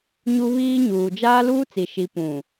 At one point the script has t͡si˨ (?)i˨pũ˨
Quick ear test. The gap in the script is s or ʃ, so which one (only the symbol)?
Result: ʃ